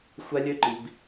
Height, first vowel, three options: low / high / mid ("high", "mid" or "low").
low